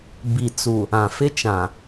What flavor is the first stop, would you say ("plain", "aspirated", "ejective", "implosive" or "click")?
plain